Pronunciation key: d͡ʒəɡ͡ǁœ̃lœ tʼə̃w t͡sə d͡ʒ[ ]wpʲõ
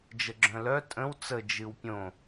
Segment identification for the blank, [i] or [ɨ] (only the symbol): ɨ